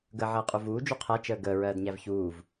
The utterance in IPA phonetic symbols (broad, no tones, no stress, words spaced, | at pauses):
ɡəːʕəːqʼuvuː d͡ʒuqʰæ t͡ʃəːɡəː ɹɜːdɲævçuːv